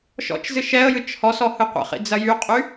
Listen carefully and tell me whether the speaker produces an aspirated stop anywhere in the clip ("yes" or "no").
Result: no